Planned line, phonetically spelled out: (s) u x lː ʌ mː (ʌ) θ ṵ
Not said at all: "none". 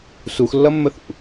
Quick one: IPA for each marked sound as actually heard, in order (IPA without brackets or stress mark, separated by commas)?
s, ə